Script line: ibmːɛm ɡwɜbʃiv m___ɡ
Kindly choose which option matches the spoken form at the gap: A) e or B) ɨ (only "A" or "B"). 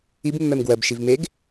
A